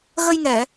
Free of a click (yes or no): yes